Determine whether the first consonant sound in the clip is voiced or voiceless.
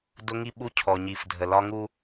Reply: voiced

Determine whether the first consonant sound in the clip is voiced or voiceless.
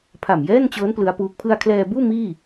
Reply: voiceless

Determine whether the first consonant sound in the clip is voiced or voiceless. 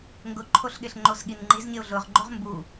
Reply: voiced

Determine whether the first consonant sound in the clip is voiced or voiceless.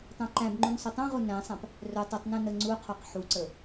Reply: voiceless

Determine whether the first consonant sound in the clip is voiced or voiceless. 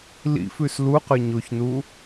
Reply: voiced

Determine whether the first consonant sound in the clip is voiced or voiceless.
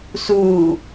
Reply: voiceless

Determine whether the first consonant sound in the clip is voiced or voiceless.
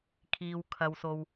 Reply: voiceless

